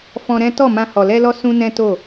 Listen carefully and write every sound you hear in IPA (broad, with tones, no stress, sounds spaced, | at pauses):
f ɔ̃˧ ɾ ɛ̃˦ t ɔ˦˨ m ã˧ h ɔ˨ l ɛ˧ l ɔ˧ s ũ˦ n ɛ̃˦ t o˦˨